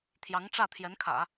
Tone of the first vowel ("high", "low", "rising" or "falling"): rising